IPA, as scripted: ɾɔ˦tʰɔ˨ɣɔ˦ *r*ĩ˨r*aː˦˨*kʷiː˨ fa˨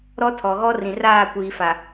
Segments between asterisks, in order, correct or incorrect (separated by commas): correct, correct